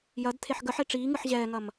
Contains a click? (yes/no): no